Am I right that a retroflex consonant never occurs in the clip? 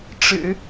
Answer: no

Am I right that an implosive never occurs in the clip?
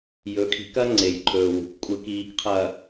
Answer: yes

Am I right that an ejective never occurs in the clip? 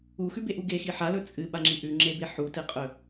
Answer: no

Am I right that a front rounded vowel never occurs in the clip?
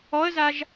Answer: yes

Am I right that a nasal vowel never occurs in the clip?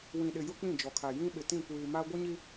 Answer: no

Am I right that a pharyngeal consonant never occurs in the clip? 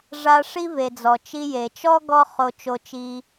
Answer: yes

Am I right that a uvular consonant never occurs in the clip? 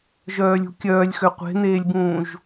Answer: no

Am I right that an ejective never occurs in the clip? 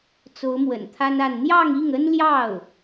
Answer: yes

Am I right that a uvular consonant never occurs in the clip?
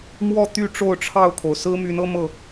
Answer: yes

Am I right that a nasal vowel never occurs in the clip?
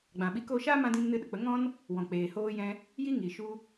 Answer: no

